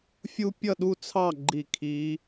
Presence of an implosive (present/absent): present